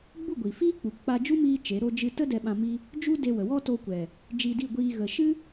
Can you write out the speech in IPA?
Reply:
ɡ͡bu˦˨ɡʷi˨fiː˦k͡pu˨ k͡pa˧d͡ʒu˦miː˧ t͡ʃe˨˦ɾo˦d͡ʒɨ˦ tə˦ dɛ˧ɓã˧mi˦ | d͡ʒu˦ de˧wə˨wɔ˦toː˧ kʷɛ˨ | d͡ʒiː˧di˦˨ɡʷiː˧ ɣə˨ʃɨ˦

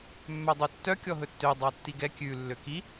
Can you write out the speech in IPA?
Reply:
mːœdˤøtːœ kʲɔɦɵtːø dˤɑtːiɡɛ kʲʉ lːøki

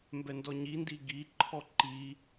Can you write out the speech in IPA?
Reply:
mbɛndɔɲindi ɡiǃʰɔ ǃi

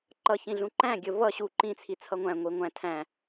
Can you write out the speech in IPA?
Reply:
ǃʌçĩɮũ ǃæ̃ɡʲə vʌ ɕu ǃĩt͡sʰi t͡sʰʌŋʷæ̃ ŋʷi ŋʷæ̃ tʰæ̃

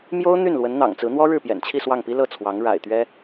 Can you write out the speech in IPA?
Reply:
mjo˥ʊ̯ n̪y˥˩nlwə˧˥nn̪ɑ̰˨˩ŋt͡sɹ̩˧˥ n̪wɔ˥ ɻɻ̩˥˩pjɛ̰˨˩nt͡ɕʰi˥˧ swɑ˥˩ŋpi˥ lɤ˥˩t͡sʰwɑ˧˥ŋ ɻa̰˨˩ɪ̯t̪ɥɛ˥

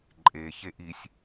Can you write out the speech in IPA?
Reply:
ǃʼe çeʔisʲ

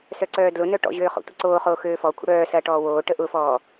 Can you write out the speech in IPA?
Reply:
sœǀœːdlʊnœ ʈɔ̰ʑøː χo̰tʷɐǀoːχoː xøːfɔkʷʰə̰ ɽœː sɐʈɔːwoːʈə ʔʊfɔː

